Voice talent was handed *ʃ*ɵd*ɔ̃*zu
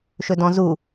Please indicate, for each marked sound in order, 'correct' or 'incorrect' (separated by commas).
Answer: correct, correct